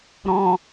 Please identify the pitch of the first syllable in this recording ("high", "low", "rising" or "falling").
low